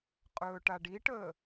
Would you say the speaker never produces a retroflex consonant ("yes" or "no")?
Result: no